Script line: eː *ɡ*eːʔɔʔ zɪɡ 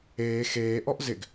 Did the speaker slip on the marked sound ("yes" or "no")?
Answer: yes